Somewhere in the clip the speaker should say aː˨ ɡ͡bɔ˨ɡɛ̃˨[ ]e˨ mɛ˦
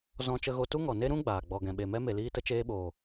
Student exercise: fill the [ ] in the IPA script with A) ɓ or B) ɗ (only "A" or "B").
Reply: A